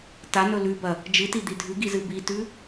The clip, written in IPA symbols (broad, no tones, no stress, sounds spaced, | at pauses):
t a n ɵ l ʉ b ɐ | d͡ʒ ɨ t i d̪ i dʱ ʉ ɡ i z ɨ b i t ʉ